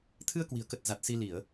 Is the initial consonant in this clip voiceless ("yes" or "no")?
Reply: yes